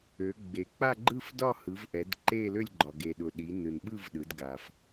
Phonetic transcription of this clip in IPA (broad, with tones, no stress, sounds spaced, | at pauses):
ø˩˧ ɡ͡b e˩ k͡p a˥˧ ɡ͡ǃ ɯ˥˧ f d ɒ˥˧ h ɯ˩˧ v ʔ ɛ˩˧ d ǃ e˥˧ l ø˥˧ lʲ ɡ͡ǃ ɒ˩ ɡ e˩ ɗ ʊ˩ ɗ i˩˧ n ɯ˩ n ɓ ɯ˥˧ v ɗ ɯ˩˧ d ɡ a˩ f